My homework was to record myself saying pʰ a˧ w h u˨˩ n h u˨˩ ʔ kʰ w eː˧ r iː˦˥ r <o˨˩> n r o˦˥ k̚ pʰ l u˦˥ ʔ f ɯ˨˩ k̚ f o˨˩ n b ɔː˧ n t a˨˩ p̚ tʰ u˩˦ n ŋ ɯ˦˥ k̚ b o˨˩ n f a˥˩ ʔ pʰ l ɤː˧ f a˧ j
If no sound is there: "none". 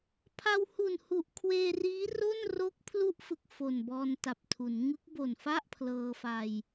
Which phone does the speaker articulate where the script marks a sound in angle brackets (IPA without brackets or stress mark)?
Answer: o˥˩